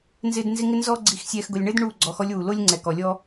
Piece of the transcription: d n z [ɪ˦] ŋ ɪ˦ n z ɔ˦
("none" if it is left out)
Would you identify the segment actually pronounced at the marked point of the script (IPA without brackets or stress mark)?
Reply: ɪ˦